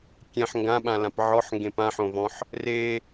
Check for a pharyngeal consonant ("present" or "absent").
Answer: present